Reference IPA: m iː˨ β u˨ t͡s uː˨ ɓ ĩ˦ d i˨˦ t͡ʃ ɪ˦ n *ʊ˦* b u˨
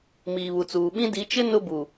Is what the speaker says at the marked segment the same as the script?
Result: yes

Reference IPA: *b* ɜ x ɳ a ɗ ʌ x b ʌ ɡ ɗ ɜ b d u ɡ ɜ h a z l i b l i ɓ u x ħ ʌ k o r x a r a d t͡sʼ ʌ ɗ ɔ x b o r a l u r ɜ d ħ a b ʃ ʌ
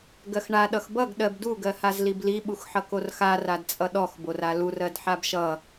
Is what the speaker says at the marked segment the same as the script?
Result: no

